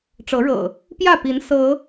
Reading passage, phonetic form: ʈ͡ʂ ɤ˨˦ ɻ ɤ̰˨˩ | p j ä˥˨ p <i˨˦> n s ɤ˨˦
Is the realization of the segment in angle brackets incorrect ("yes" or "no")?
no